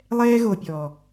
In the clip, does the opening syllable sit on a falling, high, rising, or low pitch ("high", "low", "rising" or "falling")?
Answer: high